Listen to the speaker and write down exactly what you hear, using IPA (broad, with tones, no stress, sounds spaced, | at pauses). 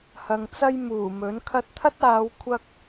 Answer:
h ɐ˨ ŋ t͡s ɐ˥ j m uː˨˩ m ɵ˨˥ n kʰ ɐ˧ t̚ t̪ʰ ɐ˥ t̚ aː˨˧ w kʷʰ ɐ˥ k̚